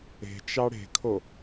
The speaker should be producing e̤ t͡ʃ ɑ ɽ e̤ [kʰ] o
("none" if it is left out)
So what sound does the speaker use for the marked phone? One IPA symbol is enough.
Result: kʰ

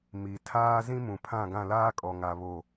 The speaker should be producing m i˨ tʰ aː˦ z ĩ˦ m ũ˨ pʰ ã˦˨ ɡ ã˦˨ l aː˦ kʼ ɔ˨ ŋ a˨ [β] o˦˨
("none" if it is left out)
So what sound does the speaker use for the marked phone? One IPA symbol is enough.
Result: β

